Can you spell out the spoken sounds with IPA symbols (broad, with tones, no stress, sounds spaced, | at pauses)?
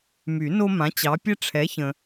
m y˨˩˦ n o˦ m ã˨˦ t͡ɕ ɑ˨˦ pʲ ɛ˦ ʈ͡ʂʰ ɛ˨˦ ç ə̃˨